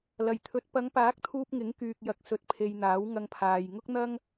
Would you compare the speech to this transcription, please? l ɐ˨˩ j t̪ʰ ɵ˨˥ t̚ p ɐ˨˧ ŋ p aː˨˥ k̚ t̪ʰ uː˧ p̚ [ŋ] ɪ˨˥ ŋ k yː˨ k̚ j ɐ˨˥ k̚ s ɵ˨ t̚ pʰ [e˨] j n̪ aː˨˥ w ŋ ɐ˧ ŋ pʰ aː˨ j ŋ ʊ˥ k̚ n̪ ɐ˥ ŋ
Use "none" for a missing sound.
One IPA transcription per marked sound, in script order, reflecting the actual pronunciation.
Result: ŋ, e˨

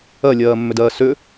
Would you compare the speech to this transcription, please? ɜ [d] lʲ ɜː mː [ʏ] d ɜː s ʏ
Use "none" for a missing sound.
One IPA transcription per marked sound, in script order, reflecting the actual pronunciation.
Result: none, ʏ

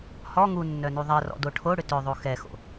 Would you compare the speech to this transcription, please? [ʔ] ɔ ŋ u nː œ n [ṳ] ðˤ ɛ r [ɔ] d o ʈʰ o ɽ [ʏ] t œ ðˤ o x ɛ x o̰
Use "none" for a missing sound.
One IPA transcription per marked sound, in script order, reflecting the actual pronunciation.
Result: h, u, ɔ̰, ʏ

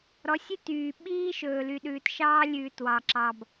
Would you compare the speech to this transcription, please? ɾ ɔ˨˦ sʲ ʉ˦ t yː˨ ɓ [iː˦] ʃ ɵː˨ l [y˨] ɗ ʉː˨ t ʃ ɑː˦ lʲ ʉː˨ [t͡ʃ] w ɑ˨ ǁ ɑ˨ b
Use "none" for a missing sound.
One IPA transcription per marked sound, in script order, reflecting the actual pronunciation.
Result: iː˦, y˨, t

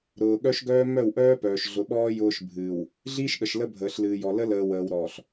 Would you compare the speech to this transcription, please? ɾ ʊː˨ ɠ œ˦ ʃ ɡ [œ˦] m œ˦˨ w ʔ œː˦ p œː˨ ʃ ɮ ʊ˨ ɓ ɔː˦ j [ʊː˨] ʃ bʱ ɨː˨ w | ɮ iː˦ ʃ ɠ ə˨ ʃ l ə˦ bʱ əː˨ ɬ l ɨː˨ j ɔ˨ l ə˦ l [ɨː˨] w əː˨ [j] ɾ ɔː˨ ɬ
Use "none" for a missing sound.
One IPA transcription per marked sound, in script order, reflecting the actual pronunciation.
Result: œː˦, ʊː˦, əː˨, w

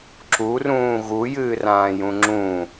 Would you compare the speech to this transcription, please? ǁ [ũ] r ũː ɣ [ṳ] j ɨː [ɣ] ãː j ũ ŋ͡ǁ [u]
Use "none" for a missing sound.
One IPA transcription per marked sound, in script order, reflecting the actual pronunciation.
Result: u, u, r, ũ

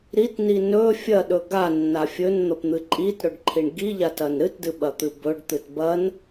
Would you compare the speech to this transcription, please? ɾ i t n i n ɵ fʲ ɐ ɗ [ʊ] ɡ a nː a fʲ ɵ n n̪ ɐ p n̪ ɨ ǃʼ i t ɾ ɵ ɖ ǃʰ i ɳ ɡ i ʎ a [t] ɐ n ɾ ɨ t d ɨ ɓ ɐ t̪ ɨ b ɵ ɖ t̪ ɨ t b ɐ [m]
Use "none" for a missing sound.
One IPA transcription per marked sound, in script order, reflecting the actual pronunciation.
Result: ɵ, t, n

